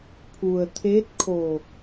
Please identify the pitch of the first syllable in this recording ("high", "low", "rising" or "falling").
low